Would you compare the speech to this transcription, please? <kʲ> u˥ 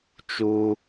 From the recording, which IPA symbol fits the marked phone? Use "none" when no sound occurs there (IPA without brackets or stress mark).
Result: t͡ʃ